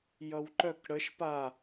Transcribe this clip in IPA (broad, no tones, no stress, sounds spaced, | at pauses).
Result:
j ʌ w ǃ œ k ɽ ə ʃ p a